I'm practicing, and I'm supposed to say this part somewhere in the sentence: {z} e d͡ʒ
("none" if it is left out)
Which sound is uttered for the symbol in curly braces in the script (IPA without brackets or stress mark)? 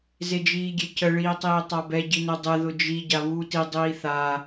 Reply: z